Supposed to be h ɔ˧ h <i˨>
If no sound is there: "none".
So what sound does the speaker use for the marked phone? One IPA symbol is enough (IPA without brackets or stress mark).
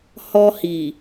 i˨